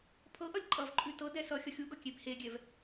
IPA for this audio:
pʰ ɤ ʔ ʌ lʲ ǃʼ ʌ v ǃʼ ʉ t ɤ d ɛ s ʌ xʲ ʌ xʲ u ɡ ʌ kʲ e b h e ɡʲ ɛ v

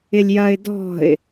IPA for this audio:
ɪ lʲ j ɐ ɪ̯ d ɔ̤ ɪ̯

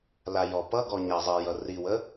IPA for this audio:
l a j ɔ p ʌ ɡ ɔ ɲ a zˤ i j ʌ r i w ə

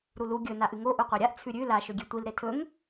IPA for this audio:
ɾ u l u ɡʲ ɵ n a ʔ ɨ ŋ o ʔ u qʷ a ɾʲ a ʔ t͡sʰ ʉ ɾʲ ʉ l a ʃ ɵ ɡʲ e tʷ i l ɾ e tʰ ɵ ŋ

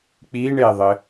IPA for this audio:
k͡p i ɳ e ðˤ ɘ

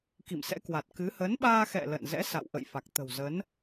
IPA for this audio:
k ḭ˧˨ m s ɛ̰˧˥ k w a˨˩ t̚ k ɨ˨˦ h ə˨˦ n ɓ aː˧ x ɛ̰˧˨ l ə̰˧˨ n z ɛ̰˧˥ s a̰˧˨ w ʔ ə̰˧˨ j f a˨˩ k̚ t̪ ə̤˨˩ w z ə˨˦ n

